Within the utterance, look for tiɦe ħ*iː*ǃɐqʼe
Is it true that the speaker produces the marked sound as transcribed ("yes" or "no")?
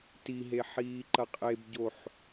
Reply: yes